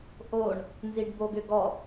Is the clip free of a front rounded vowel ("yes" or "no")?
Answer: no